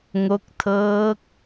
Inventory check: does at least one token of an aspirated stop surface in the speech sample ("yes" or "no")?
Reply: yes